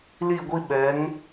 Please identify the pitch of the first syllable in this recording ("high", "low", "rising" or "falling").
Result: falling